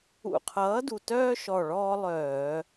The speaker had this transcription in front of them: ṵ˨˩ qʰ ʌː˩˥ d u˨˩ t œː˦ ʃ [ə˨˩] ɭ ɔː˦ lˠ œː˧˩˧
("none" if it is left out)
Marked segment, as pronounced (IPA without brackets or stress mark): ɔ˨˩